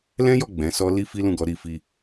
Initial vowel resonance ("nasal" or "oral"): nasal